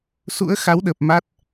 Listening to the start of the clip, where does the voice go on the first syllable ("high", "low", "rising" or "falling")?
rising